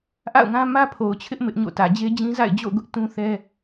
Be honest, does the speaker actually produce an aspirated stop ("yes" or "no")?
yes